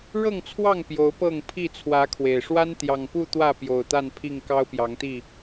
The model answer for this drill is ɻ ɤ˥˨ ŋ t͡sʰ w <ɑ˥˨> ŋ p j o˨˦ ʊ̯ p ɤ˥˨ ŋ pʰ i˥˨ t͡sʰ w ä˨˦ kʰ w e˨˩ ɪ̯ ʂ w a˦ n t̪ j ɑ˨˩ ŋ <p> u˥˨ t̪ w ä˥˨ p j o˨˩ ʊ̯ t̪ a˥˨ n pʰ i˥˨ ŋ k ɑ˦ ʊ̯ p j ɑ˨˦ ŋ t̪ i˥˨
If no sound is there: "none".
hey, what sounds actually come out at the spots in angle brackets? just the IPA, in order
ɑ˥˨, p

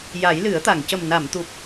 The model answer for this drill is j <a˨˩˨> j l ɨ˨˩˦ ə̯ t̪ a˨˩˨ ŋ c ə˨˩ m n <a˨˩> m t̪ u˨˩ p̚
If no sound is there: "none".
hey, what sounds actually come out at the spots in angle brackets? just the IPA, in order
a˨˩˦, a˨˩˨

